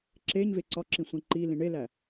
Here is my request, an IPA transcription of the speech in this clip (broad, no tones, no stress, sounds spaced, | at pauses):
ǁ e ɲ v e ǀ ɒ ǁ ĩ sʷ ẽ ǃ i l ĩ ɳ e l æ